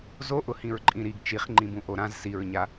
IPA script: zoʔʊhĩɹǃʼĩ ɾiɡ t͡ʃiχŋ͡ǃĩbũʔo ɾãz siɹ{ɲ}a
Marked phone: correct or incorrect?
correct